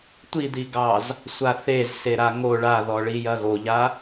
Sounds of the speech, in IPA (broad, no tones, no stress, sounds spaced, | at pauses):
tʷ i d̪ i ɡ ɑ z | sʷ a θ e z s e ɾ a ŋ o ɭ a ð ɔ ɭ i j ɐ ɣ o ʎ a